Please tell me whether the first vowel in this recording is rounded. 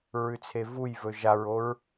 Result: yes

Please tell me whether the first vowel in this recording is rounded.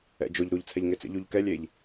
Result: no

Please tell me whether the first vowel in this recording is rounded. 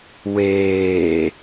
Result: no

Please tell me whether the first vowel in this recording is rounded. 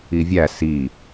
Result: no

